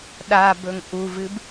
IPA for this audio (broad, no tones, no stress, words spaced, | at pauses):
ɗa bɵŋʔuvɨb